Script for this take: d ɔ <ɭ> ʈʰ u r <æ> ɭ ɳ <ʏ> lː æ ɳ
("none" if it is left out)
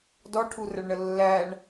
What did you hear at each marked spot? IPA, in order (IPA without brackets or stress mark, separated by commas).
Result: none, ə, ə